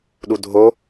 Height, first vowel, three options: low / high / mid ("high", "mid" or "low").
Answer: high